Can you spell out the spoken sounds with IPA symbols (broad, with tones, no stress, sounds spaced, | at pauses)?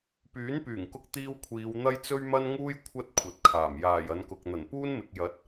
p yː˨˥ n p yː˨˩ ŋ k ʊ˧ k̚ t̪ iː˧ w kʷʰ iː˨˧ w n̪ ɐ˥ j t͡s ɵ˥ ɥ m ɐ˥ n ŋ uː˥ j kʷʰ ɐ˥ t̚ kʷʰ ɐ˨ t̚ kʰ aː˨˩ m j aː˨˩ j ɐ˨˧ n k ʊ˨ k̚ n̪ ɐ˨˩ n p uː˥ n m ɪ˨ k̚ j ɐ˨˥ t̚